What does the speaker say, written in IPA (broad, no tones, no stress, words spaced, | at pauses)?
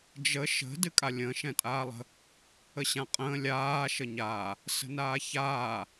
d͡ʒə ʃə̤ dɨkʼalʲə̃ː ʃɛ̃tʼaːlˠə̤ | əɕãqʼə̃ː lʲaː ʃəɲaː | sə̤naːçaː